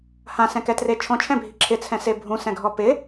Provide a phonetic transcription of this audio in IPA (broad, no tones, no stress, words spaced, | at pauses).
hãsɛ̃kɛtre t͡ʃʰɔ̃t͡ʃʰɛ̃bʱi ǁʰɪt͡sʰɛ̃se bʱũsɛ̃ɡʱɔ pɪ